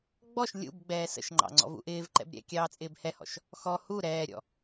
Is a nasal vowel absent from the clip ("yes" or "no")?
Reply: yes